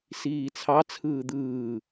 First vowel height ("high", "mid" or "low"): high